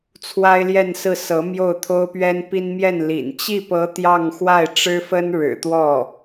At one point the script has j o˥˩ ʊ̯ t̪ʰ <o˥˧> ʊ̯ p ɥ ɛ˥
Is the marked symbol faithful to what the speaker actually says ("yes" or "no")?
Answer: no